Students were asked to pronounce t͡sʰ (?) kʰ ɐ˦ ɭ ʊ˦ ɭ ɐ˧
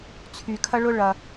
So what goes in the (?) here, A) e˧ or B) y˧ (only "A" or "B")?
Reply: B